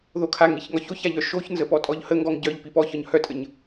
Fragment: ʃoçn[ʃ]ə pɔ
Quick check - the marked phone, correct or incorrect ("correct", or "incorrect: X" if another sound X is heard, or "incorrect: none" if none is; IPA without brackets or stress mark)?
incorrect: z